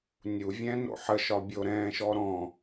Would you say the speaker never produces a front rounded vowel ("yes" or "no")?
yes